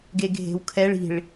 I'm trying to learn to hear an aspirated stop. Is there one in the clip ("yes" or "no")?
yes